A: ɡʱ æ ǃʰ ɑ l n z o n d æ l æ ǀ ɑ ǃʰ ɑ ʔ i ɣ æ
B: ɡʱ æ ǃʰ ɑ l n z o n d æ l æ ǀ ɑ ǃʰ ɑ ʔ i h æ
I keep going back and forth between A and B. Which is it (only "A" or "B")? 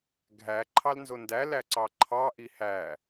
B